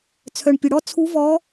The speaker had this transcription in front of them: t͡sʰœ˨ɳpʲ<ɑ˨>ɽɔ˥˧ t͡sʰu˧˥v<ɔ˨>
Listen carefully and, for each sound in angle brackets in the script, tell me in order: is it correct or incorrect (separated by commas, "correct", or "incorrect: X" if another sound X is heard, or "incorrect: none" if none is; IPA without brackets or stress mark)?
incorrect: ə˨, incorrect: ɔ˧˥